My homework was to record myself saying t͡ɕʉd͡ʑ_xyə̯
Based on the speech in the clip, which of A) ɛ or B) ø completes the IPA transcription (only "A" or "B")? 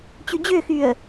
B